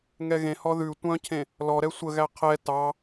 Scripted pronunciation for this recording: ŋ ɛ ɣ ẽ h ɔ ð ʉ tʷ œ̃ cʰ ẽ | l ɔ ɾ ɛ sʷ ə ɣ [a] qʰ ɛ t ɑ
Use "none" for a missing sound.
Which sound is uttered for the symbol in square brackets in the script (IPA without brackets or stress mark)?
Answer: æ